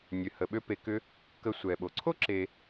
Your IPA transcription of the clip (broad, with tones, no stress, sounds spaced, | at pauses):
nʲ ø˩ h ə˩ ɓ ø˧ p e˧ k ʏ˥ | k ə˧ sʷ ɛ˩ ɓ o˩ ǀʰ o˥ ǁ e˧